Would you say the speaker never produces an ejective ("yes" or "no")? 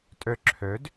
no